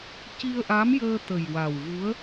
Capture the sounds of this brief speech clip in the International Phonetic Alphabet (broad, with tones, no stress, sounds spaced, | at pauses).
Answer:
c i˧ ə̯ ʔ a˧˥ m j əː˧ t̪ ə˨˩ j w a˨˩ w v u˧˥ ə̯